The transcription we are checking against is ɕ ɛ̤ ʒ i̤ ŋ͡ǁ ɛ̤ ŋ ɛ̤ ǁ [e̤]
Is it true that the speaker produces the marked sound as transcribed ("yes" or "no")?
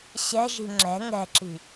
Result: no